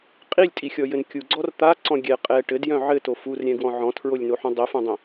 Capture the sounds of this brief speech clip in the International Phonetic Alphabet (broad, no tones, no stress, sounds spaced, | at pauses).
qʼ i lʲ tʼ i xʲ ɔ j ɘ n kʲ u ɡ͡ǀ ɔ r t̪ a ǀ ɔ̃ ɡʲ ɛ qʼ ɛ ʈ ɘ d j œ̃ ʕ ɘ t o f u r ɾʲ ɛ̃ ɡ w ɔ̃ ʕ ɔ̃ tʰ ɹ o lʲ n o ħ õ dˤ i f õ dˤ ĩ